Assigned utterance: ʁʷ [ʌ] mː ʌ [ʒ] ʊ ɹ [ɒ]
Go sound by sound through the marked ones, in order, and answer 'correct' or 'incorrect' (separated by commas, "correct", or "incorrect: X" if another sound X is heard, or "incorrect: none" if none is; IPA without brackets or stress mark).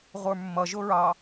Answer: incorrect: ə˞, correct, incorrect: ɑ